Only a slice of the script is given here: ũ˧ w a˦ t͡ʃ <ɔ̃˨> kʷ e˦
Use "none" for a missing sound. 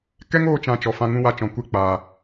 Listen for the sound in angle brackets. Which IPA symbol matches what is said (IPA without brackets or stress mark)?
ɔ̃˨